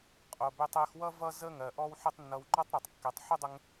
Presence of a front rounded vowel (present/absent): present